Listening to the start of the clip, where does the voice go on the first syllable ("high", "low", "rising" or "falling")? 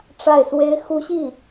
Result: falling